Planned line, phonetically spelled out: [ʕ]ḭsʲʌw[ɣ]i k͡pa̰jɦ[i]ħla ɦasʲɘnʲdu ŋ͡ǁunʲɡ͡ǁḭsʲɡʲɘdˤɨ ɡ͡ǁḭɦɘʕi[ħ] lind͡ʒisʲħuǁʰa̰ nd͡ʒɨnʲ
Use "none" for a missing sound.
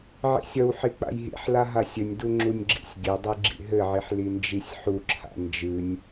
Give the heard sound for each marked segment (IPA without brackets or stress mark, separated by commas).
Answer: ʕ, ħ, ḭ, ħ